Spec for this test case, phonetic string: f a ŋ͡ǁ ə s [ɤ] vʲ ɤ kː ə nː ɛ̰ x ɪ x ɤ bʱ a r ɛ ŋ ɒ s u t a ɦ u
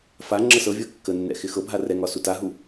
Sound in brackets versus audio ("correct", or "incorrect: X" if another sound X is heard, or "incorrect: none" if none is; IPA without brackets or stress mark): correct